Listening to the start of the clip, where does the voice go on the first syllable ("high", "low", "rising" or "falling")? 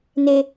high